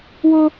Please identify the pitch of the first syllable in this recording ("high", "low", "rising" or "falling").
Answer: high